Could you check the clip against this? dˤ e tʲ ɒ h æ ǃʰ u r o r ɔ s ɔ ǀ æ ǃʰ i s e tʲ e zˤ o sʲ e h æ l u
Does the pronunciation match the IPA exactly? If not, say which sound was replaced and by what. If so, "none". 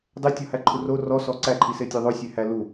zˤ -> ðˤ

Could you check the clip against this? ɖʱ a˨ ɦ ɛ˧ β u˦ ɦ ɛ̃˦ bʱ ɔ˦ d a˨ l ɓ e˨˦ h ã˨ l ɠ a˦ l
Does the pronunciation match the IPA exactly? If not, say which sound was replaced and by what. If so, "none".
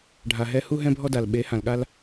β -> h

